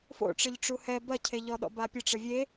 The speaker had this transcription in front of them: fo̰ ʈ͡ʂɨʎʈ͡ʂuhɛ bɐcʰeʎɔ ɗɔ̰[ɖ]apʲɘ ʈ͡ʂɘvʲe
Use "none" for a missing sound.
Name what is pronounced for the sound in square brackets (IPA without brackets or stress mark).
b